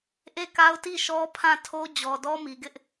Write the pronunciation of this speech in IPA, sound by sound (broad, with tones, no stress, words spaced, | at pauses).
ʔe˦˨ka˦ʊ̯ti˦˨ ʃɔ˦pʰã˦˨ tʰo˦d͡ʑɔ˨dɔ˦ mi˨ɡɪ˦ʔ